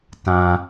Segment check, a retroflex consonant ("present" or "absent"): absent